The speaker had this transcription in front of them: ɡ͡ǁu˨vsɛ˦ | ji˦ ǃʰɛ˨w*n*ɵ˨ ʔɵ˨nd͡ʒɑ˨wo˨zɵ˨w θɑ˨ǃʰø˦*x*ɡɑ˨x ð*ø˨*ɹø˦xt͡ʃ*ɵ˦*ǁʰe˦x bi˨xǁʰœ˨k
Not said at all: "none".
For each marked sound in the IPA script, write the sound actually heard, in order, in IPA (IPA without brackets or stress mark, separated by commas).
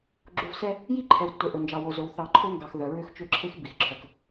tː, ŋ, œ˨, ø˦